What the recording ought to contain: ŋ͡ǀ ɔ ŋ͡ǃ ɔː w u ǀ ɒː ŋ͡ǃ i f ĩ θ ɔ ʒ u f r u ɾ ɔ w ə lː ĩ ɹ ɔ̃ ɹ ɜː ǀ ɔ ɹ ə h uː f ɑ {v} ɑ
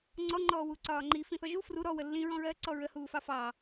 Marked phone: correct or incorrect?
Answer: incorrect